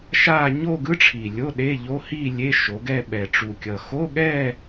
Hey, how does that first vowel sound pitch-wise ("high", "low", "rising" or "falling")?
falling